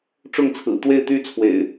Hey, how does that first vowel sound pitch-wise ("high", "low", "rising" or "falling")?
falling